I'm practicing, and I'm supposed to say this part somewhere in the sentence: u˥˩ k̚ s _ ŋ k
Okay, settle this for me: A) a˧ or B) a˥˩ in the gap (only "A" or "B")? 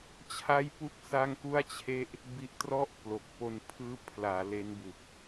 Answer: B